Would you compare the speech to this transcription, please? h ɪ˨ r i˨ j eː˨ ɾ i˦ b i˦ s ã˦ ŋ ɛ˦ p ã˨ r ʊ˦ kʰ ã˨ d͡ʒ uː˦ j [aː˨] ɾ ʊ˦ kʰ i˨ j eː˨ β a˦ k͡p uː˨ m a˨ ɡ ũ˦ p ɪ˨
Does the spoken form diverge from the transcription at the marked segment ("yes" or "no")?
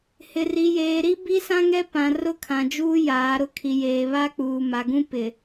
yes